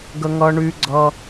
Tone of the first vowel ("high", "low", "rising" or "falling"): high